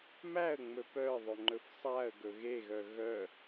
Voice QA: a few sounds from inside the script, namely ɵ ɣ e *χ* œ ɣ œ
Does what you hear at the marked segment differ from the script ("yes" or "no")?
yes